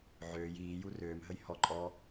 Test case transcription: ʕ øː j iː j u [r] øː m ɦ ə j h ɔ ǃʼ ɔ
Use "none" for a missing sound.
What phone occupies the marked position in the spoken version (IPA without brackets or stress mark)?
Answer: r